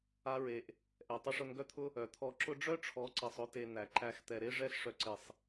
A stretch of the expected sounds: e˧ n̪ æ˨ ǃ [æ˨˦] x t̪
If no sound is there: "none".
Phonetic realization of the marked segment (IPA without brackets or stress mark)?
æ˧